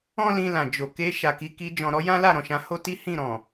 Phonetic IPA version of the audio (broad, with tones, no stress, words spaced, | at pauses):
ɔ̃˦lĩ˧lã˨d͡ʒo˨ ke˧ ʃa˨ki˨˦ki˧ d͡ʒɔ̃˨ɾɔ˧jã˦ la˦˨ɾɔ̃˨ʃã˨˦ho˦ ti˦hĩ˦˨ɾɔ̃˨